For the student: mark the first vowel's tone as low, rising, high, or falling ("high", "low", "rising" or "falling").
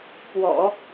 low